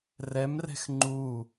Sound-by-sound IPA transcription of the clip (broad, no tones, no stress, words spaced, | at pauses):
rɛmrɛ̤x ŋ͡ǃu